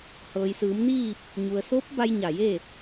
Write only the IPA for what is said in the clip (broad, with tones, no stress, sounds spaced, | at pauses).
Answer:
h ɤː˩ j s ɯː˩˧ m n iː˥˨ p̚ | ɲ u˩ ə̯ s o˧˥ p̚ b a˧ j ɲ a˧˩ j e˥˨